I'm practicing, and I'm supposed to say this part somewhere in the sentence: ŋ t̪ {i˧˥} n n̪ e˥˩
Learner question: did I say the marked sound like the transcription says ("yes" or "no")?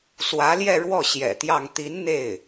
yes